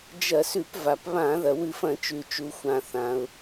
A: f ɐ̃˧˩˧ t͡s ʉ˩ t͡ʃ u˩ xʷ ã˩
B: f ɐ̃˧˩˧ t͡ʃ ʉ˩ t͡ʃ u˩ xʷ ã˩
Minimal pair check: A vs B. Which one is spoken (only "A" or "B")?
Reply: B